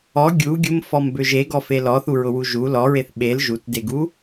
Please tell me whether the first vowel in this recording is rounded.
yes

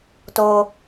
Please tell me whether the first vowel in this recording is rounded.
yes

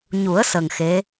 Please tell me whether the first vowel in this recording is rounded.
yes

